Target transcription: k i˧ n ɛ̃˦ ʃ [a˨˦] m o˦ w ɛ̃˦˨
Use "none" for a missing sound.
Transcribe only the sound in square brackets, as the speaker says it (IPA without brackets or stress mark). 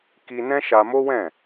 a˧